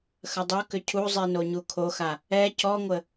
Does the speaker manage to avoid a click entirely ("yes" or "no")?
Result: yes